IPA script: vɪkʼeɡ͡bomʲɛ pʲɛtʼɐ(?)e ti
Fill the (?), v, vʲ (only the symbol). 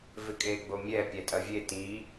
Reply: vʲ